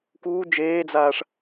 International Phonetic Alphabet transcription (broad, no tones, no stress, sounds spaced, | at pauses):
k uː d͡ʒ eː d͡z aː ʂ